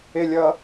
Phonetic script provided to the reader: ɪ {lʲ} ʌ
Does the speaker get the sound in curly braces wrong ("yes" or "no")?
no